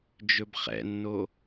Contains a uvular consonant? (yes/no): yes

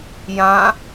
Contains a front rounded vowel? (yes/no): no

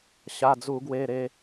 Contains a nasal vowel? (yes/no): no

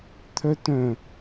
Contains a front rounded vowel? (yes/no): yes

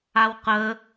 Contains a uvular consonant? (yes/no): yes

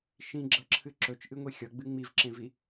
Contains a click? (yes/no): yes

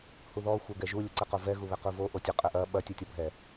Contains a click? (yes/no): yes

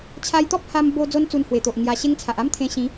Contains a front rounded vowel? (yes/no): no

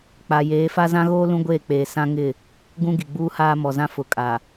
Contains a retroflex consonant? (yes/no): no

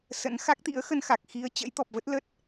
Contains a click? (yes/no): no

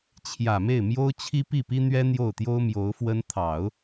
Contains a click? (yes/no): no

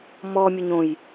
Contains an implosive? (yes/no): no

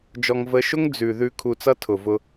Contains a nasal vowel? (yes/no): no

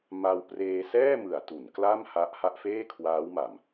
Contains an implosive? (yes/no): no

